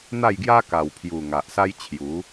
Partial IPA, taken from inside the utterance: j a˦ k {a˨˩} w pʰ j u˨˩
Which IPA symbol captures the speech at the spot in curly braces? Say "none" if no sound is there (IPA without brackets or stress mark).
a˨˩